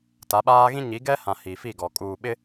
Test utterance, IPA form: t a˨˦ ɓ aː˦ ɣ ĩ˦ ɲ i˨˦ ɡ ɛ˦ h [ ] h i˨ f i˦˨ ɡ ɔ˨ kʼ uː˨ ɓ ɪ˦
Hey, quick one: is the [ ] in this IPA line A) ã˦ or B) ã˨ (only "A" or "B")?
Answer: B